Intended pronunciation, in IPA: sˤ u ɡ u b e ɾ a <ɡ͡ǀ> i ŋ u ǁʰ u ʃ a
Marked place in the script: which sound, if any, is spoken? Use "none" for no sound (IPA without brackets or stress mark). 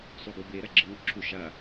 ɡ͡ǁ